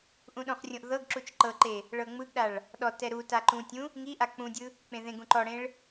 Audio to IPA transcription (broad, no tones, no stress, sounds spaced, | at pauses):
ʔ ũ ɗ õ χ rʲ õ ʔ ð ɤ ɡ ǁ u t͡ʃ ǃ ɤ ǃ e | ɭ ɤ ŋ͡m ɯ ɡ ɗ a ɭ | ɗ ɔ t ɛ ɾ u t a ǃ ũ tʲ ũ | ŋ i ʔ a k͡p ũ dʲ ɯ | k͡p ẽ ð ẽ ɡ ũ ǃ ɔ ɽ ẽ ɭ